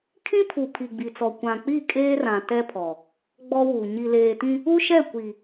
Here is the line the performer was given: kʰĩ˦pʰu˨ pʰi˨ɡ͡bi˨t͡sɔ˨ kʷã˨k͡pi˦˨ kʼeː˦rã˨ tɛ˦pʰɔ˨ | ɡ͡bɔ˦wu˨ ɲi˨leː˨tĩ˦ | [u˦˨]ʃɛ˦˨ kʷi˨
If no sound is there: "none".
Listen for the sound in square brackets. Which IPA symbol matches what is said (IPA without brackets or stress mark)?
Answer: u˦